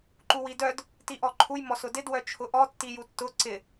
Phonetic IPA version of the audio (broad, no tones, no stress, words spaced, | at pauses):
ǃuwidœd | tiʔɔǃʰuj mɔsʊdɪd wœt͡ʃʰʊʔɔ tːijutːʊ ǀɪ